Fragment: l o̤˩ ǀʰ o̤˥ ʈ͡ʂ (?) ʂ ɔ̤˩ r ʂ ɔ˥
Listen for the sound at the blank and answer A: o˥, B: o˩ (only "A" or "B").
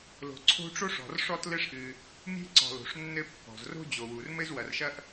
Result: A